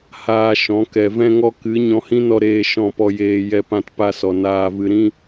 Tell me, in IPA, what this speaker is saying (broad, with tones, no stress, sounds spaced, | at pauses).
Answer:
h aː˧ ʃ ɔ̃˨˦ k ɛ˨ v ɛ̃˧ ŋ ɔ˧ k ɨ˨˦ ɲ ɔ̃˧ h ĩ˦ n ɔ˧ ɾ eː˧ ʃ ɔ̃˦˨ p ɔ˧ j eː˧ j ɛ˧ p ã˧ t p a˧ s ɔ˨ n aː˨ v ɨ˨ ɾ ĩ˧